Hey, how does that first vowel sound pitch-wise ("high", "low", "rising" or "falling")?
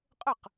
falling